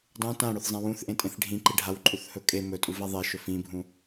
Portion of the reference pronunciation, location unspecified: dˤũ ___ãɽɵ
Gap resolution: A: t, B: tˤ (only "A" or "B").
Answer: A